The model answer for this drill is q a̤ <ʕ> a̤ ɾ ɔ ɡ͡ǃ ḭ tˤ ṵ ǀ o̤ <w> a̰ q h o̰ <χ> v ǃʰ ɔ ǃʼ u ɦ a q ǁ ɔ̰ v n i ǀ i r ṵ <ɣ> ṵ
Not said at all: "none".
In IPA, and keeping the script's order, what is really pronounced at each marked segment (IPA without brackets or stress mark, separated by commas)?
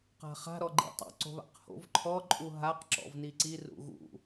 χ, β, none, ɣ